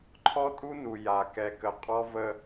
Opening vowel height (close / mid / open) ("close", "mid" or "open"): mid